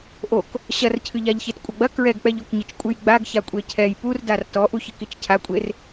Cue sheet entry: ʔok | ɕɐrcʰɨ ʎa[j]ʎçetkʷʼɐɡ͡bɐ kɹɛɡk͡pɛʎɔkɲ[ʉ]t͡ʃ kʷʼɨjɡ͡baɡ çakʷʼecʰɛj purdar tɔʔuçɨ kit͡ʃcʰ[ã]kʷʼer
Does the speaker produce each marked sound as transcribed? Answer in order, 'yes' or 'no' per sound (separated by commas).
no, no, no